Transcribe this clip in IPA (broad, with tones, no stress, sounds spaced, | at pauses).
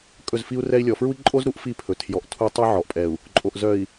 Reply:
kʼ ɵ˦˨ z f i˦ u̯ r ɛ˦ i̯ lʲ ɔ˨ f ɹ u˦ i̯ ǃʼ o˦ z ɾ u˦ ʔ f i˦ pʰ ɵ˨ tʰ j ɔ˨ ʔ tʰ u˦ tˤ œ˦ ʕ ɔ˨ ʔ pʼ ɛ˨ u̯ | ǃʼ o˨ ʔ z œ˨ i̯